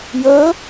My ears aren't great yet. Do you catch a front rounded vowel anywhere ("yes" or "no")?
no